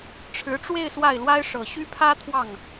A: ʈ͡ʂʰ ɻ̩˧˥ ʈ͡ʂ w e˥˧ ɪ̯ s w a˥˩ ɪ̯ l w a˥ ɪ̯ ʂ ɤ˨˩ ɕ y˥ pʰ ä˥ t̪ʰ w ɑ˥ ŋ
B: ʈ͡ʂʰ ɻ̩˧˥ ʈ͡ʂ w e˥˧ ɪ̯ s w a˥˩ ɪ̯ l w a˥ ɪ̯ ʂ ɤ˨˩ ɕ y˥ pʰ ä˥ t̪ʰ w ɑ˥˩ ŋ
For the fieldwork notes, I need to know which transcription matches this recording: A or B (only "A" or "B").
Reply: B